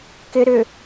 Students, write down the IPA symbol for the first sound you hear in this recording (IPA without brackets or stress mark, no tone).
k